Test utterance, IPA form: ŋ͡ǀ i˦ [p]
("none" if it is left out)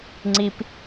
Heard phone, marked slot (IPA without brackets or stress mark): p